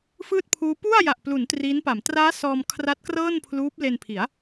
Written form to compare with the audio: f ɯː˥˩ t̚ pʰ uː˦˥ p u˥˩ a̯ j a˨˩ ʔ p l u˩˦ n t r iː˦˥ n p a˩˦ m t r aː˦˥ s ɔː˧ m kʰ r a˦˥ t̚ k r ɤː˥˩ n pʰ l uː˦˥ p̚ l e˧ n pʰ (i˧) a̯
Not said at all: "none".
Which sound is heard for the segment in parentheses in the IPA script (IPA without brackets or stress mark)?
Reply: i˩˦